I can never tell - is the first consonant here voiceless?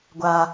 no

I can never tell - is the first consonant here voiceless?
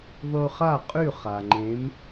no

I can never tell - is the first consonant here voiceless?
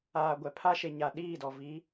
no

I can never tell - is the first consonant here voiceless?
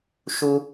yes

